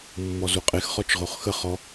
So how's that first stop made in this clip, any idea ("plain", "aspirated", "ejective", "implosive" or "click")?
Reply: ejective